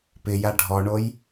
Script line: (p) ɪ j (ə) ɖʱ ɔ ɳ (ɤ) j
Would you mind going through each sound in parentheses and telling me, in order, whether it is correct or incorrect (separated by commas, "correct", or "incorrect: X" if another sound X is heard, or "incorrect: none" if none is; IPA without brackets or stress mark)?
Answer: correct, incorrect: a, incorrect: o